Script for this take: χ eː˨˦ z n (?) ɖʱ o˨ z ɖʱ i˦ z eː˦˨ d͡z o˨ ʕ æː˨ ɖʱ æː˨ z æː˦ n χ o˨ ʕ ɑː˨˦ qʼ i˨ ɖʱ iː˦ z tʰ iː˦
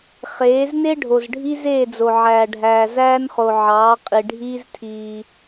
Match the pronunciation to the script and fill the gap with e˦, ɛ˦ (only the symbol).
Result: e˦